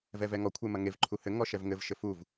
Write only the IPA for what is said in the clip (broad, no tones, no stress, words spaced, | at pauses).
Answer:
vɛvɛŋɔ kʷʰemɐŋev ǃʰuhɘ ŋɔʃɛvŋɘv ʃɘfuv